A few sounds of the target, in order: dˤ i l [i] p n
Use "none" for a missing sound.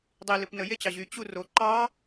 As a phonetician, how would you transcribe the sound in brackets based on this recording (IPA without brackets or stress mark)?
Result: ɨ